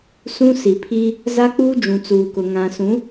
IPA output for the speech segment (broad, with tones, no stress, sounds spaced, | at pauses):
s ũ˦ s i˨ pʰ i˦ | z a˦ k͡p uː˦ d͡ʒ ũ˨ t͡s uː˨ k ʊ˨ ŋ ã˨ s ũ˨˦